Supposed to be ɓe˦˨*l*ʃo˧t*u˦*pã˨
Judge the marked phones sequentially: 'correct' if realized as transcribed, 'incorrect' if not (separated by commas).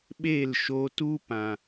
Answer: correct, correct